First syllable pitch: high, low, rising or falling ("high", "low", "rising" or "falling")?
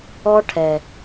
high